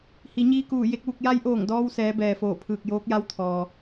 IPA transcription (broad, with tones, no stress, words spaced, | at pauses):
hi˩˧ɲiː˧kuː˧˩ je˥˨k̚ʋu˧k̚ ja˧˥jʔoː˧˩ŋdɔː˧wsɛː˩˧ bɛː˩foː˧˩pʰɯː˧˩k̚joː˧˥k̚ ja˧˥wt̪ʰɔː˩